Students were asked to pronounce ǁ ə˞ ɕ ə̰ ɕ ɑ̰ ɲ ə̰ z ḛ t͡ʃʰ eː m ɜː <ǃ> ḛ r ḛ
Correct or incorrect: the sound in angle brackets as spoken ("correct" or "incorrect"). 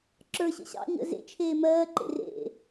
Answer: correct